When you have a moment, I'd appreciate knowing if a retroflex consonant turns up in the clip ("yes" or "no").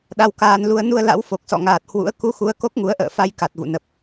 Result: no